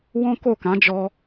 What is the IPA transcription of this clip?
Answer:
w ɔ̃˦ k o˦˨ k ã˨˦ d͡ʒ ɔ˧

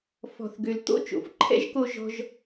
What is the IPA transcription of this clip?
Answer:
f ɔ̤˩ θ ɡ ø˩ l t̪ o̰˥ t͡ʃ o̰˩ f ǃʰ ɛ̰˥ ʒ k o˧ ʒ ɔ̤˧ ʒ

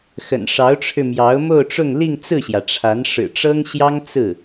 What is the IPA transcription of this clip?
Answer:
x ə̰˨˩ n ʂ ɑ˧˥ ʊ̯ ʈ͡ʂʰ ɻ̩˧ m j ɑ˧˥ ʊ̯ m o˥˧ ʊ̯ ʈ͡ʂ ʊ˥˧ ŋ l i˥˧ ŋ t͡s ɹ̩˥˩ ɕ j ä˩ ʈ͡ʂʰ a˧˥ n ʂ ɻ̩˨˩ ʈ͡ʂ ɤ˥ ŋ ɕ j ɑ˥ ŋ t͡s ɹ̩˥˩

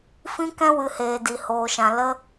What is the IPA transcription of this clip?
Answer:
f ĩ˦ k ɛ̃˦ w ɨ˧ h eː˧ d i˧ h oː˧ ʃ ã˧ l ə˦

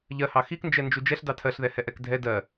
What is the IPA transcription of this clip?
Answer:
ʎ ɜ h ɑ x i k n d͡ʒ ɛ n d͡ʒ u d͡ʒ ɛ ɬ d ɑ tʰ ɜ ɬ ð ɛ h ɛ ʔ ɛ k dʱ ɛ d ɜ

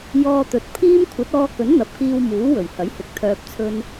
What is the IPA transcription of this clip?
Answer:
j ɔː˧ t̪ ɵ˨˥ t̚ pʰ iː˥ m kʷʰ ɐ˨˥ t̚ ɔː˧ k ɵ˨˥ n n̪ ɐ˨ p̚ k iː˧ w m uː˨˥ w ɵ˨˩ ɥ h ɐ˨˥ j h ɪ˨˥ k̚ t̪ʰ œː˨ p̚ t͡sʰ ɵ˧ n

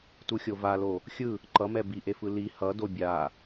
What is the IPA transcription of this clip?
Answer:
t u xʲ o v a l o | xʲ ɯ | ǃ ʌ m ɛ b i ʔ e f ɯ l i h ʌ d o bʲ a

